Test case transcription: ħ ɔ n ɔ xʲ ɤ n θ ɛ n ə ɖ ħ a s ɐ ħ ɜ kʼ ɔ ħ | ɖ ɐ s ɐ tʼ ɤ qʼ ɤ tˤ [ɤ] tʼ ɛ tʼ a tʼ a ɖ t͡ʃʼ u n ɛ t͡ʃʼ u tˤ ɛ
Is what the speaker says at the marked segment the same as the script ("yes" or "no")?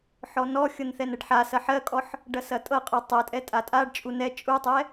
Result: yes